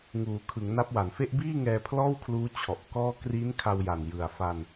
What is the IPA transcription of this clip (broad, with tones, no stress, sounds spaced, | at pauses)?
ŋ uː˩˦ kʰ ɯ˩˦ ŋ n a˦˥ p̚ w a˨˩ n f e˥˩ ʔ b iː˥˩ ŋ ɛː˧ pʰ l ɔː˥˩ w kʰ l uː˦˥ t͡ɕʰ ɔ˨˩ ʔ k ɔː˥˩ k r i˦˥ n kʰ a˧ w j a˨˩ n j ɯ˨˩ a̯ f a˧ n